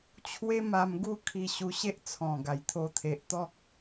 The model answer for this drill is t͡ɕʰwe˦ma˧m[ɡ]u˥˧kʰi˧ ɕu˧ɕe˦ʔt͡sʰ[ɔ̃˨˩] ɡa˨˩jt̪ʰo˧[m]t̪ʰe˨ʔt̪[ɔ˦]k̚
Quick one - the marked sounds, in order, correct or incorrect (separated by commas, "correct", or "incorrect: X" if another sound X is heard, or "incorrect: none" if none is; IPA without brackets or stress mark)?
correct, correct, incorrect: none, correct